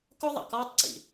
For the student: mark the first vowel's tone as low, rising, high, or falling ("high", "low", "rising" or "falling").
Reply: high